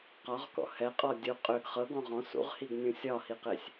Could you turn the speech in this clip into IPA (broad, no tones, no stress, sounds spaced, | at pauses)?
q ɒ ʁ k ɔ̰ h ɛ qʼ ɔ dʲ u qʼ ø ɡ χ ɤ ɡ ɔ̃ ʁ ɔ̃ s ṵ ʁ h i ɡ nʲ ũ sʲ ɒ h i q e sʲ